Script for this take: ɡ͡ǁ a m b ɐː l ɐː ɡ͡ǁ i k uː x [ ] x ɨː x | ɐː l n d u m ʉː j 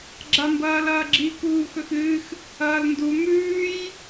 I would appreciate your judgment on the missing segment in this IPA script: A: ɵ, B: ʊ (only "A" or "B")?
A